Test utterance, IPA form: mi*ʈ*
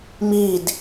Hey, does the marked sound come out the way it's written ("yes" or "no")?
no